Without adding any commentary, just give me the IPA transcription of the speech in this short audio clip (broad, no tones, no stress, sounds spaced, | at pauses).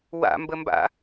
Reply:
w a̰ m b ə m b a̰